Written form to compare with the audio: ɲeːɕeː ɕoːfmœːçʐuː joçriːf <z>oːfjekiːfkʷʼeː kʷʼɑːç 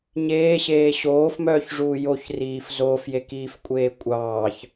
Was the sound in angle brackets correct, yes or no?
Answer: yes